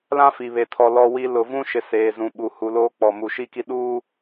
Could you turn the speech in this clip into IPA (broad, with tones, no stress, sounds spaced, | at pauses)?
l ã˦ f i˨ β e˨ tʰ ɔ˨ l ɔ˨ w i˨ l ʊ˨ v ũ˦ ʃ ɪ˨ s eː˨ z ũ˨ ɓ u˨ h u˨ l oː˦ k͡p ɔ˨ m u˨ ʃ i˦ k i˦ ɗ uː˦